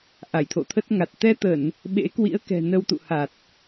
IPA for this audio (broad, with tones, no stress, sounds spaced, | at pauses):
ʔ a˧˩ j t̪ʰ o̰˧˨ t̪ʰ ə˦˥ t̚ ŋ a˨˩ t̚ t̪ ɛ˧ t̪ ə˧˩˨ n | ɓ ḛ˧˥ k w ḭ˧˥ ə̯ k ɛ̤˨˩ n ə˧ w t̪ ṵ˧˨ h a˨˩ t̚